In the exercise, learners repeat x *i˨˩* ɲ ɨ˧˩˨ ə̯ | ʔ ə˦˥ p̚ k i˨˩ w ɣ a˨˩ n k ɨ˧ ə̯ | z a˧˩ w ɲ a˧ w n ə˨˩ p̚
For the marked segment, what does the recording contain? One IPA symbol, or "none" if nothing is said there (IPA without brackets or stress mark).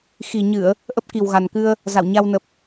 i˨˩